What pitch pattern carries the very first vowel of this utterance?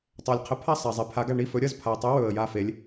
low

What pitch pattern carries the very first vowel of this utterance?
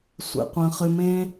low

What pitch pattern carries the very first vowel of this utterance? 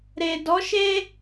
low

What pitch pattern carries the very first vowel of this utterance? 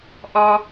high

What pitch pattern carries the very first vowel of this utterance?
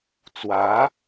rising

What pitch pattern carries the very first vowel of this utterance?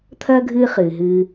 high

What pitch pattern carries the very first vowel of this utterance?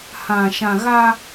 low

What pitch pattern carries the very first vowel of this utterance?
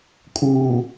low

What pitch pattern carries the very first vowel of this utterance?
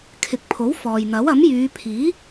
rising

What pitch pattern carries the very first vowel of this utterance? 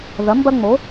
rising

